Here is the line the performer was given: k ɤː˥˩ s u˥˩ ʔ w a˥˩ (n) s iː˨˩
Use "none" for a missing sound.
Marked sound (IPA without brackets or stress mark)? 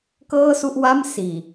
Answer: m